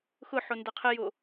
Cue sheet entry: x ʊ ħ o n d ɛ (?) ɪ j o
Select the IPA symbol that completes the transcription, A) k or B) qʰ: B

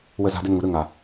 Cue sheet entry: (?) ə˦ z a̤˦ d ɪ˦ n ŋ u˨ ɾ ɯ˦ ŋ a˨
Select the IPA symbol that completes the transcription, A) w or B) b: A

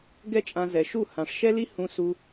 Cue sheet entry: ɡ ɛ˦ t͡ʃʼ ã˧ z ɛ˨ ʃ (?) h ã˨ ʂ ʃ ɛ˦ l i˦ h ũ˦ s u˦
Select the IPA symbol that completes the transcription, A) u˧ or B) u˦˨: B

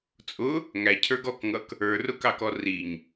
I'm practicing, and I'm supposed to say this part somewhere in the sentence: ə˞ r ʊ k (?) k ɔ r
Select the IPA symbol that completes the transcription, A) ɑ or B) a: A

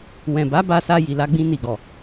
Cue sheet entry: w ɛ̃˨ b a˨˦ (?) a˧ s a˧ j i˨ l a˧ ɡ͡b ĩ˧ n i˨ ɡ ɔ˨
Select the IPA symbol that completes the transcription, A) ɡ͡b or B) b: B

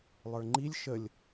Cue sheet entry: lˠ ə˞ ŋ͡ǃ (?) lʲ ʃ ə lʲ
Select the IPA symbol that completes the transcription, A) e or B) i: B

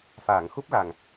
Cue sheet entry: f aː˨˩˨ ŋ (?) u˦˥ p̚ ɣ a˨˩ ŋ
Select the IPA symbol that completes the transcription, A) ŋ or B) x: B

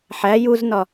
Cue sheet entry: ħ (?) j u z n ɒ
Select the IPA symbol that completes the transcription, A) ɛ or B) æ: B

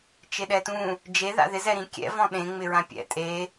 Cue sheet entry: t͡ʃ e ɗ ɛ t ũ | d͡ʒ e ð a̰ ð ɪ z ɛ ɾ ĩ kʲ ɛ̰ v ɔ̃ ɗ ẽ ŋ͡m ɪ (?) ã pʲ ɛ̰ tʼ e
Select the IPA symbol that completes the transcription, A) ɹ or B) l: A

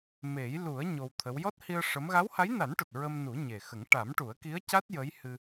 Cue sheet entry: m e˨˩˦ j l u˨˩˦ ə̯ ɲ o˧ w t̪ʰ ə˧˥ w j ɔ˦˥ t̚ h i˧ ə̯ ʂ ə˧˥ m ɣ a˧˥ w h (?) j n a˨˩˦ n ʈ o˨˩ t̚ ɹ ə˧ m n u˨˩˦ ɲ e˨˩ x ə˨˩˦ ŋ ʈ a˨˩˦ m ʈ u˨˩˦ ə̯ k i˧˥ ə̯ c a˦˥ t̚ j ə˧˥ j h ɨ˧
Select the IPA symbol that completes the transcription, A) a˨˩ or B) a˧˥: B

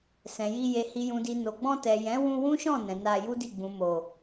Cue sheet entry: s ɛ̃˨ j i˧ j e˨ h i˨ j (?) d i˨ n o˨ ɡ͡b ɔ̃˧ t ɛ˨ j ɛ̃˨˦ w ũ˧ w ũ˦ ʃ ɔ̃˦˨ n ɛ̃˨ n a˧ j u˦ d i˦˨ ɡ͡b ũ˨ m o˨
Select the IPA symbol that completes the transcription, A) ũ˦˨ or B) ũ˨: B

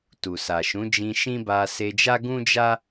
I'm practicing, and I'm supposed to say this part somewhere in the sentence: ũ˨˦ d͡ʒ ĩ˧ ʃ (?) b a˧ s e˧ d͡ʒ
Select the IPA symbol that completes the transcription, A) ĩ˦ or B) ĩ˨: A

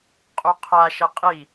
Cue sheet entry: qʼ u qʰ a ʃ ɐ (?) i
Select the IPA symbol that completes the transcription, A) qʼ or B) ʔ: A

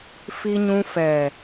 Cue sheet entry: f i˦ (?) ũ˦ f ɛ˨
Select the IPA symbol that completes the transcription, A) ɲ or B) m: A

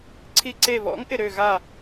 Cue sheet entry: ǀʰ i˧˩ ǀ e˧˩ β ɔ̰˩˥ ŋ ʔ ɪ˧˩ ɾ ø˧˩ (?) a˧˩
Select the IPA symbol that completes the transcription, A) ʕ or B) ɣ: B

